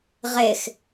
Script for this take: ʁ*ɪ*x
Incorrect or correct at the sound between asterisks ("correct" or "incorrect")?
correct